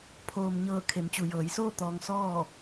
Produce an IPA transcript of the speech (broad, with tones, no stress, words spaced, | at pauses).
pʰoː˩mɲɤː˧˩ kʰe˩˧mt͡ɕu˩jɤː˩˧jsoː˥˨ t̪ɔː˧ŋ sɔː˥˨